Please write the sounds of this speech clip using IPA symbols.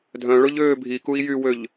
dʱœ̃ɭʊʎøː bʱikui̯ jywøʎ

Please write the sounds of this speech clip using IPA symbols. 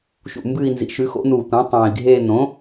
ʃṵ˨˩ mbɨː˦˨i̯nzḭ˩˥ʃʉ˩˥ xo̰˩˥nuː˨˩ tʷɐ̃ː˩˥ tˤẽː˨˩i̯ɡʱeː˦˨ nõ˩˥

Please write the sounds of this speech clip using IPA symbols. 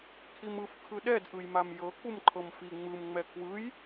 kʰimɯf kʰɯɗɛd ʔɯjmamjɤ k͡pumǃʰɤmfi ŋ͡mɯm ŋ͡mɛkʰwɯj

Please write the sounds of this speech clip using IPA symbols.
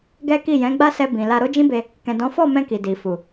ɡɛ˦ki˦˨ jɛ̃˨˦ɡ͡ba˦ sɛ˧bĩ˨ la˧ɾo˦d͡ʒĩ˦be˧ | kɛ̃˨dɔ̃˨˦fɔ˦˨mɛ̃˧ ki˨di˨fu˨

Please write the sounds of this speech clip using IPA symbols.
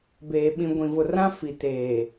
beː˨ ɓĩ˨ ɡʷĩ˨vʊ˨rã˦ fi˨teː˨

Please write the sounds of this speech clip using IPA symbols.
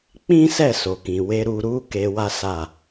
k͡pĩ˦sɛ˦˨ so˨kĩ˨we˧ ɾu˦ ɾu˦ ke˧wa˦ sa˦˨

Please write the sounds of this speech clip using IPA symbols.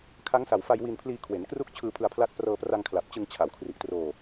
kʰa˦˥ŋsa˨˩wfa˧j wi˧npʰliː˧kʰwe˩˦n kru˥˩k̚t͡ɕʰɯː˧ pʰɯ˧a̯pʰla˦˥t̚ prɤː˧pra˧ŋkʰla˨˩p̚t͡ɕɯ˧ŋ t͡ɕʰa˩˦wkʰri˨˩ʔtroː˧

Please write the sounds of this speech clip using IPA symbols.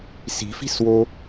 si̤fi̤swo

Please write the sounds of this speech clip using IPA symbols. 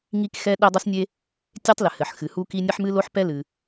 ŋi˥kxɛ˥ ɗe˥dˤɨ˥snʲe˥ | tʲe˥tˤlɘ˩ hɘ˩ħ xɨ˩hu˥ki˥ nʲɐ˥ħmɨ˥lo˥ħpɛ˥ lɨ˩

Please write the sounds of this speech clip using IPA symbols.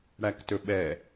ɽæktɵɓɛ

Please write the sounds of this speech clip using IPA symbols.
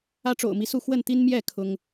ä˦ʈ͡ʂo̰˨˩ʊ̯mi˦su˥˨ xwə˥˨nt̪i˦nmjɛ˥˨ kʰʊ˦ŋ

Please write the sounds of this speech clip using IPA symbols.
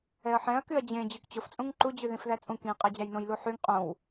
ɛɐ̯ħɛ̃ɐ̯ kyɐ̯d͡ʑẽ d͡ʑykt͡ɕof t͡sʼũŋǃu d͡ʑʉðĩfðæt͡sʼũ kĩ qʼæd͡ʑæjnõj luħyŋ qʼõw

